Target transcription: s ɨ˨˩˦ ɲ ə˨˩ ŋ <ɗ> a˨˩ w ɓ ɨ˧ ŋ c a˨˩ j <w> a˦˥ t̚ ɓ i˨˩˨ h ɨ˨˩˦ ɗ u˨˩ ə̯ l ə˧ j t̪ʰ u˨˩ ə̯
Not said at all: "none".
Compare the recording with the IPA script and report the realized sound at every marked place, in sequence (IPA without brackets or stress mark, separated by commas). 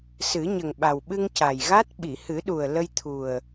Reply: ɓ, ɣ